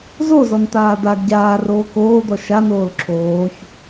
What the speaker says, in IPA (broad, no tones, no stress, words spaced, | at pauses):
zozɔnt̪aː d̪aɡ ɟaːroː koːd̪ɔ ʃanoːl ǁʰoːç